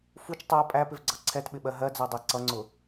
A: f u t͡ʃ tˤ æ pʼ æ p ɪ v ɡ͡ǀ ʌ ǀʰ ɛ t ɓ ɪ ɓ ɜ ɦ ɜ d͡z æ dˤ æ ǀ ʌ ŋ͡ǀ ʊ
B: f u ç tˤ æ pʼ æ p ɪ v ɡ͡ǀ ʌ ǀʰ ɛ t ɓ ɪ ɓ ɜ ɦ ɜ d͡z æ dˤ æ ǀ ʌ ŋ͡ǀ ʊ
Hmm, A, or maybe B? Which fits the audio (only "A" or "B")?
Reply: A